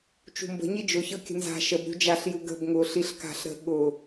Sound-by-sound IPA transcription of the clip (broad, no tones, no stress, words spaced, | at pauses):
t͡ʃṳmbə̤ ɲid͡ʒʊ çɤkʲə̤nza̤ ʃəb ɾʲṳd͡ʒaɬ juɡə̤b ŋʊːɬiɬka̤ɬ ɾə̤ ɠʊ